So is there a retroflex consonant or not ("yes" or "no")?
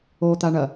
yes